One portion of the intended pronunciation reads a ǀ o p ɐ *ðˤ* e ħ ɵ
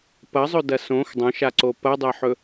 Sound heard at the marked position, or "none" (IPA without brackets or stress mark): dˤ